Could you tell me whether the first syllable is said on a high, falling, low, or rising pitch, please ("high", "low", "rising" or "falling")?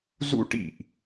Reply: high